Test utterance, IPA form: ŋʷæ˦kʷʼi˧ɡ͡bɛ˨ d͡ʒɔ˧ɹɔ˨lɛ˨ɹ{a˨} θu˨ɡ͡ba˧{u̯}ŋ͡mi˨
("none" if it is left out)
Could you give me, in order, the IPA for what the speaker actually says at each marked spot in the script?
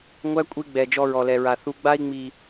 a˨, i̯

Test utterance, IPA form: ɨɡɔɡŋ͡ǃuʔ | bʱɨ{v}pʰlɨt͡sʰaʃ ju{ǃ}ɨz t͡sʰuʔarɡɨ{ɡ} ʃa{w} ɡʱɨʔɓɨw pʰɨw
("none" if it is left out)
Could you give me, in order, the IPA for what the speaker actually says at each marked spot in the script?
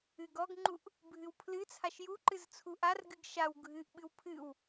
w, ǃ, ɡ, w

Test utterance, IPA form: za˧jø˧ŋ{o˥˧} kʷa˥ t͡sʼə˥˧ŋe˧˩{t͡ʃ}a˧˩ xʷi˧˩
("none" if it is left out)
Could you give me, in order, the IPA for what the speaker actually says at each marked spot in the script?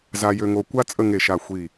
o˧, ʃ

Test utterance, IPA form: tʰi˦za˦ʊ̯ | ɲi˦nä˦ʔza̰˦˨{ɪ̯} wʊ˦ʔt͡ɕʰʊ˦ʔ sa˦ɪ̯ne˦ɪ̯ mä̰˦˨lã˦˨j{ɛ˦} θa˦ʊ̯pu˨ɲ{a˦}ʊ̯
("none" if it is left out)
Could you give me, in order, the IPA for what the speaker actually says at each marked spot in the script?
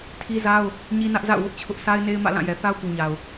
ʊ̯, ɛ˨, a˨

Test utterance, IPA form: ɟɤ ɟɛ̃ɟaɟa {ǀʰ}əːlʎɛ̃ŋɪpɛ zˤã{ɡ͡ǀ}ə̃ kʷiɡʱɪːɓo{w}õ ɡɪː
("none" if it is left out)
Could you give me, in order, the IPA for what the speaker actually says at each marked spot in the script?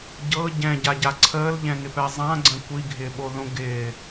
ǀʰ, ɡ͡ǀ, ð

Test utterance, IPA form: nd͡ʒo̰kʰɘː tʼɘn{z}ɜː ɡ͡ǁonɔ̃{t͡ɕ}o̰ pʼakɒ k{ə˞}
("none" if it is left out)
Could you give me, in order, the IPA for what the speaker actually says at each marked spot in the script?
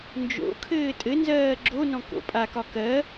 z, k, ɜ

